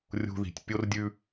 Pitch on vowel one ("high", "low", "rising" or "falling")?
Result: high